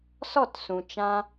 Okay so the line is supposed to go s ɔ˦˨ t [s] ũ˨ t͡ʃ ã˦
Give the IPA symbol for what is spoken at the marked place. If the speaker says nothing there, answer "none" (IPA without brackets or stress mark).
s